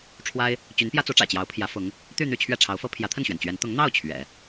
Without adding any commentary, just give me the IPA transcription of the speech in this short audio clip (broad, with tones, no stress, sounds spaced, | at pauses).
ʈ͡ʂʰ w a˥ ɪ̯ | t͡ɕ y˧˥ n p j ä˥ t͡s u˧˥ ʈ͡ʂ ä̰˨˩ t͡ɕ j ɑ˧˥ ʊ̯ pʰ j ä˧˥ f ʊ˧˥ ŋ | t̪ y˥˧ n̪ y˥˧ t͡ɕʰ ɥ ɛ˥˩ ʈ͡ʂʰ ɑ˧˥ ʊ̯ f ɤ˥ pʰ j ä˧˥ t̪ʰ ə˥˩ n ɕ ɥ ɛ˩ n t͡ɕ ɥ ɛ˧˥ n t̪ ʊ˧˥ ŋ n̪ ɑ˥˩ ʊ̯ t͡ɕʰ ɥ ɛ̰˨˩˦